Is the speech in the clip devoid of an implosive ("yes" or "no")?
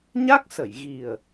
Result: yes